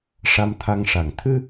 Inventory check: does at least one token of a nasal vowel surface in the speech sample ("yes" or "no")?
no